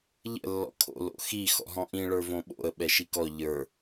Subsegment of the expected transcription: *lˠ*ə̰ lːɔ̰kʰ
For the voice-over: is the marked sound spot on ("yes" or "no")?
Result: no